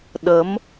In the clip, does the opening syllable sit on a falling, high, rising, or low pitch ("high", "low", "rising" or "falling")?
rising